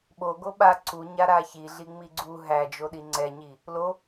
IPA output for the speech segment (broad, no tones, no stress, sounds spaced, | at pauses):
ɓ o ɡ o ɓ a ǀ u ɲ a ɾ a ç i ɮ i ŋ͡m i ɡ͡ǀ u ɦ æ d͡ʒ o ɗ i ŋ͡ǀ ɛ ɲ i | l o